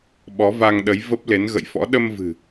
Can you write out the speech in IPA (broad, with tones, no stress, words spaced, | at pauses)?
ɓɔ˨˦va˧ŋɗə˨˦j və˦˥p̚ le˨˦nɣə̰˧˨jfɔ̰˧˥ ɗə˧mvɨ̤˨˩